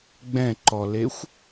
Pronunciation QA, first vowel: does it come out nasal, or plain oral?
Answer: nasal